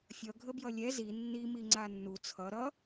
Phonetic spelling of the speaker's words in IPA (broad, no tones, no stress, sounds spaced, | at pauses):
fʲ ʌ ɡʱ ə b j ʌ lʲ ɛ z i nː i m i ŋ͡ǀ a nː u t͡sʰ ʌ ɾ ʌ